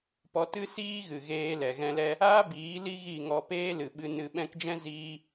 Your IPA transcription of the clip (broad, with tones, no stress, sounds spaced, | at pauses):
p ɔ˧ t ɨ˦ s iː˦ ɣ ɨ˨ ɣ eː˧ l ɛ˨ ɣ ɛ̃˧ l ɛ˦ | aː˦ b iː˨˦ l i˦ ɣ i˦˨ ŋ ɔ˧ p eː˦ l ɨ˨ ɓ ɨ˧ n ɨ˧ ɓ ɛ̃˦ k d͡ʒ ɛ̃˦ z iː˦